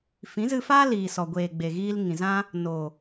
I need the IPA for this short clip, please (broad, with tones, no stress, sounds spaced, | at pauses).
f ĩ˨˦ z ɨ˧ f aː˦ l iː˨ s ɔ˨ ɡʷ eː˨ ɡ͡b e˨ ɣ iː˧ l ŋ ĩ˨ z ã˦ | n o˨